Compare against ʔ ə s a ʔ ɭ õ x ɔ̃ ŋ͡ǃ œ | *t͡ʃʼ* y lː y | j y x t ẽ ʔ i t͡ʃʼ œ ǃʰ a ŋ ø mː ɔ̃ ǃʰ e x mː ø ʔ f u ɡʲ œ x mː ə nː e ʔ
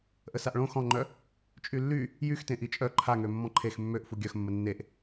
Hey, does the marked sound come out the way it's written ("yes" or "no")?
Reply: yes